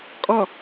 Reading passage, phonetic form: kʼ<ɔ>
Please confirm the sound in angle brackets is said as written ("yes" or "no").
yes